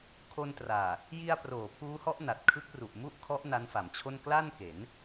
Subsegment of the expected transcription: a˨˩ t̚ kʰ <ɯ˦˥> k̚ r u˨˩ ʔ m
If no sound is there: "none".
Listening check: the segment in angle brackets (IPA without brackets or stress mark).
ɯ˦˥